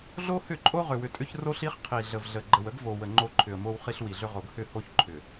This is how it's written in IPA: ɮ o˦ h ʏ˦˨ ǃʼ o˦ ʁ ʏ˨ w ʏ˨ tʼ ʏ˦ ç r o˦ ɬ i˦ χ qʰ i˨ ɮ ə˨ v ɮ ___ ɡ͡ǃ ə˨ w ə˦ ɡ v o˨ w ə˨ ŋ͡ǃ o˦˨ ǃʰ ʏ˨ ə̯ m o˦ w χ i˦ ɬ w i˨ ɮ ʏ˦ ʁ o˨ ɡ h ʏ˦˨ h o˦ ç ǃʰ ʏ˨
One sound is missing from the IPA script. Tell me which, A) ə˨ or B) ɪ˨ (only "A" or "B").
A